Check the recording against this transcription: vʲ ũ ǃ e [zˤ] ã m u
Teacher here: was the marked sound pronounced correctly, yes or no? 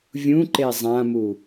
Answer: yes